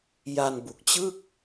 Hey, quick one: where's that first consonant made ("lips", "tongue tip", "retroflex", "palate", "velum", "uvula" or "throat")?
palate